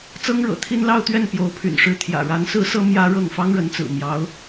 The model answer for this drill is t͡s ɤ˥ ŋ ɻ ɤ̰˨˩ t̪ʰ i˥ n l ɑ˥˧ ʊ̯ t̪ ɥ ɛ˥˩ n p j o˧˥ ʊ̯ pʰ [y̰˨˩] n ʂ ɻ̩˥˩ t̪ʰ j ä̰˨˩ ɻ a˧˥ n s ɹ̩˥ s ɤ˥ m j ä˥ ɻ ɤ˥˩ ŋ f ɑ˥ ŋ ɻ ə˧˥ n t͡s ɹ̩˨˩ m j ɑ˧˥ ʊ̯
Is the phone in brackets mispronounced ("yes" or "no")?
no